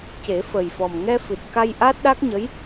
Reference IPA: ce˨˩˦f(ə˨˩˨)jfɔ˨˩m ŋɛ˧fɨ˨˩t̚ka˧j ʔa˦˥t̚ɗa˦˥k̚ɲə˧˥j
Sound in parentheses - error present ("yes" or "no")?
yes